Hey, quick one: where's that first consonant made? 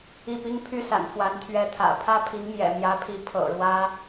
lips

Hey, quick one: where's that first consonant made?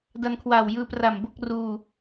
tongue tip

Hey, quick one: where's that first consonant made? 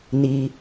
tongue tip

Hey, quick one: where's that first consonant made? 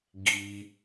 velum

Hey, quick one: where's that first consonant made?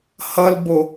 throat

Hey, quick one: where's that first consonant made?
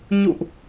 palate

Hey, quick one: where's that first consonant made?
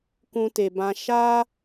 velum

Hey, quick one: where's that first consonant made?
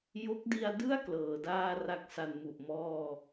palate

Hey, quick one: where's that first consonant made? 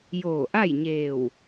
palate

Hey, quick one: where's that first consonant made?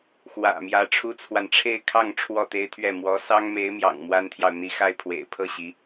velum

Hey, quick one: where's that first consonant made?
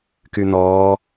velum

